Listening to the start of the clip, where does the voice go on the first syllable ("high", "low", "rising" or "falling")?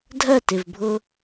falling